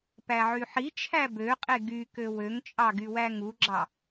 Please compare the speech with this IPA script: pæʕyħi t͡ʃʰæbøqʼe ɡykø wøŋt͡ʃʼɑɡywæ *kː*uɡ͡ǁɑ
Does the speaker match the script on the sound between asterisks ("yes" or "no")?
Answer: no